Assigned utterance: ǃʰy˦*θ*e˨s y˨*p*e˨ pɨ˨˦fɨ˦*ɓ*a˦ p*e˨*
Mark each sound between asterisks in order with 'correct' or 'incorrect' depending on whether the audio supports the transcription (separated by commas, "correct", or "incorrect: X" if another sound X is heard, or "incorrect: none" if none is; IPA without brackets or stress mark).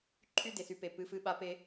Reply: incorrect: d, correct, correct, incorrect: e˦